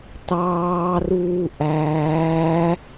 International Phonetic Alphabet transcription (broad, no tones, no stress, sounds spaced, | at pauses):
t ɑː r uː ʔ æː